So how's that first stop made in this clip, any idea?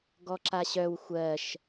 plain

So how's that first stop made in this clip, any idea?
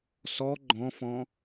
click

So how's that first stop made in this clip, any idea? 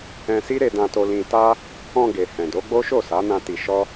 plain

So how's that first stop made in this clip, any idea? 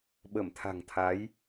implosive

